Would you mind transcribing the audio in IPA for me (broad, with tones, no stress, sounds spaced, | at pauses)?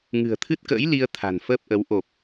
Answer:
ŋ ɨ̤˨˩ ə̯ t̪ʰ ɨ˦˥ t̚ k ə̰ː˧˥ j l i˧ ə̯ t̪ʰ a̤˨˩ n f əː˦˥ p̚ ʔ ə˨˦ w ʔ o˨˩ p̚